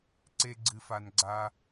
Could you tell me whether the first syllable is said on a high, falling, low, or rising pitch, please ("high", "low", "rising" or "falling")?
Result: high